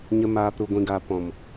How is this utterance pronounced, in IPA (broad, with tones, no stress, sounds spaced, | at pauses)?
ɲ ə˧ m aː˧ p ɾ u˨ ɡʷ ĩ˨ ɡ a˨ p ɔ̃˨ m